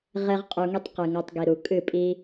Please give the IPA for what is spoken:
ʁe˦ʁqʼu˧ŋi˦tˤ qɨ˨ŋa˧tˤɡi˨ɾu˨ kʼɨ˦˨pʼi˦

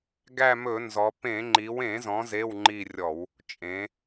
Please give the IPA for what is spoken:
ɡæ˦˨mɵ˧˩˧nzɔ˩˧ pẽ˧˩˧ ŋ͡ǃi˩˧wẽ˧˩˧zɔ̃˩˧ ze˧˥˧wŋ͡ǃi˦˨rʲɔ˧˩˧w | t͡ʃʼẽ˩˧

